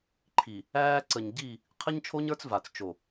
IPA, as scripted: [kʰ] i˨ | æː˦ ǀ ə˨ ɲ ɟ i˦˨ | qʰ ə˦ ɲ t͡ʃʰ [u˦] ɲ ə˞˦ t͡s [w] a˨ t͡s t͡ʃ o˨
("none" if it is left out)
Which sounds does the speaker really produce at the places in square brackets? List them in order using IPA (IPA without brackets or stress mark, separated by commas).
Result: ǃʰ, o˦, v